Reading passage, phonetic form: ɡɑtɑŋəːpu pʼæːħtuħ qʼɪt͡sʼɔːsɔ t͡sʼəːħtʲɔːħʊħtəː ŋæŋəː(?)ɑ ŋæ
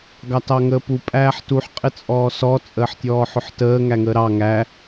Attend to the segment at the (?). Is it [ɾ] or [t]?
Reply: ɾ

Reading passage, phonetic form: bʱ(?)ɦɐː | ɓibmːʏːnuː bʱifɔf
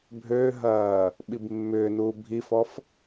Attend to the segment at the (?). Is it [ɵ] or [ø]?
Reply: ø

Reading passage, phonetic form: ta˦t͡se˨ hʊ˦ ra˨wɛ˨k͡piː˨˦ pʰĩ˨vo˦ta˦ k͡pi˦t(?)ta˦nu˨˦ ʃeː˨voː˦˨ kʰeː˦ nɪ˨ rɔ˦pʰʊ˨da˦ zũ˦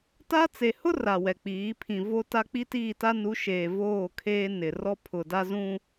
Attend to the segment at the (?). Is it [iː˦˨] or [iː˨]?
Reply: iː˦˨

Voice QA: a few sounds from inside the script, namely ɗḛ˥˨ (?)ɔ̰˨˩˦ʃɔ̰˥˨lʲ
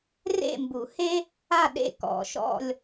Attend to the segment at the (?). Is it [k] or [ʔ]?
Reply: k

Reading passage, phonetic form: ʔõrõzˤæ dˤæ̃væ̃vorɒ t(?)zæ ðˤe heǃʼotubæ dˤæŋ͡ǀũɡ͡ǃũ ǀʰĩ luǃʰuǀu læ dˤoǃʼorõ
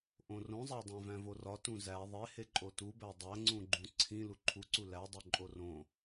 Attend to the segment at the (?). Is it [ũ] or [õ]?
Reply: ũ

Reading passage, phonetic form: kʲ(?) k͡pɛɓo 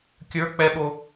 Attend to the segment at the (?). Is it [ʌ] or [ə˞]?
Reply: ə˞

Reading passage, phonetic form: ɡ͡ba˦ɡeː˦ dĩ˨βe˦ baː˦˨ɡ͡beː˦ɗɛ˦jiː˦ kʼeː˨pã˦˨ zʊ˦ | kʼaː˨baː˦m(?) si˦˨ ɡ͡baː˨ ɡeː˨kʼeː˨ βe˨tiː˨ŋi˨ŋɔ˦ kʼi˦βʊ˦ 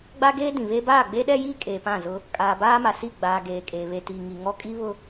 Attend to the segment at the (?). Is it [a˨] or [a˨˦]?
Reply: a˨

